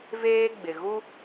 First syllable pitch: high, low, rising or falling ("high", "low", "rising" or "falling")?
high